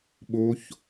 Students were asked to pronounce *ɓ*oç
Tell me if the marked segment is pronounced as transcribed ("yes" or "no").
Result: yes